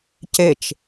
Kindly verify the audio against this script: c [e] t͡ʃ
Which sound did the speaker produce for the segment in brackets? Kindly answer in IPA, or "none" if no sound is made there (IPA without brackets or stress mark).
e